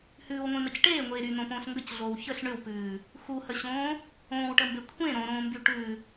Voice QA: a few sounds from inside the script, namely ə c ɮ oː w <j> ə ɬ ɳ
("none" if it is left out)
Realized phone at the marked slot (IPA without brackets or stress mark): ç